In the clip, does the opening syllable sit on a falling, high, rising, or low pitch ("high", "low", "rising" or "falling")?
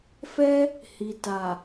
high